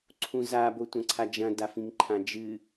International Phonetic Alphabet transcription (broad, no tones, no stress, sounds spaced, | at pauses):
ǀʰ ũ z a b o tʷ ɐ̃ ǀʰ a d͡ʒ ɐ̃ d a f ĩ ŋ ǃʰ ã d͡ʒ ɨ